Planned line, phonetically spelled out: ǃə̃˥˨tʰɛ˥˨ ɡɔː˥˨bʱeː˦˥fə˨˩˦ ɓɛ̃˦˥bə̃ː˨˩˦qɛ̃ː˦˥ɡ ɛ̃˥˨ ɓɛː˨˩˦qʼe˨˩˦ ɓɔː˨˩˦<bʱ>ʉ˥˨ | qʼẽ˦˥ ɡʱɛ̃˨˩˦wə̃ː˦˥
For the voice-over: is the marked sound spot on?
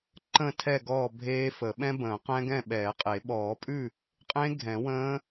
no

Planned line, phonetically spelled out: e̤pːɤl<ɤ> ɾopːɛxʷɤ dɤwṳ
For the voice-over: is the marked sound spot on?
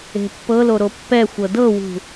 no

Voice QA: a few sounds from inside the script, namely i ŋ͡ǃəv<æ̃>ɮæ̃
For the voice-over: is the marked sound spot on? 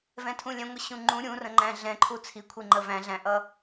yes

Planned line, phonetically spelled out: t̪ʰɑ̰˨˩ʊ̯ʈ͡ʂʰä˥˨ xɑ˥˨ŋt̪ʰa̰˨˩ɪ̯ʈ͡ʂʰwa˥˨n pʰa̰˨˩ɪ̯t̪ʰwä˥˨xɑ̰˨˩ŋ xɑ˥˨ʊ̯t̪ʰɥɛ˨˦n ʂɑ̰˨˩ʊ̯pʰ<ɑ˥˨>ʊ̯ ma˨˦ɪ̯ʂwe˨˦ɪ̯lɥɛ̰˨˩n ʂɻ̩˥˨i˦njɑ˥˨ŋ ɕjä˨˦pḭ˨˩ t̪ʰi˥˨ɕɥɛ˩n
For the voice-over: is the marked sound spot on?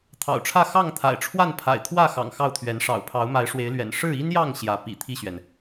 no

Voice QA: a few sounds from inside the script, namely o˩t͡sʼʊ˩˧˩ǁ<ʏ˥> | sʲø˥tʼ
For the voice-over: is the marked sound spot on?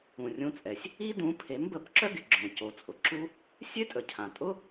no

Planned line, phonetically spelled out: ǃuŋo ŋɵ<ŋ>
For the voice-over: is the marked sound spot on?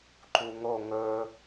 no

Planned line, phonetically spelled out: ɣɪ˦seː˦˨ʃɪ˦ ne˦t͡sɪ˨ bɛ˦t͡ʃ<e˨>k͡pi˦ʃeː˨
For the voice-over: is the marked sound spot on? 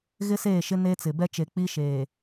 yes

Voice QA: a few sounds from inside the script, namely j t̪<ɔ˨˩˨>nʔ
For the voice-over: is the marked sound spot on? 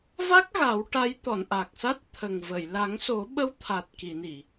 yes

